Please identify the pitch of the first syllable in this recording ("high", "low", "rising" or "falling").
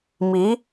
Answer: rising